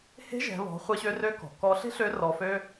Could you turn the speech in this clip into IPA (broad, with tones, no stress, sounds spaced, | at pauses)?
h e̤˧˥ ʒ ɛ̤˩˧ β ɔ̤˩˧ χʷ e˧˥ ɕ ø˧˥ r ø˧˥ k ɔ̤˩ k ɔ˧˥ ɬ e̤˥ ɬ ø˧˥ r ɔ˧ f ø˥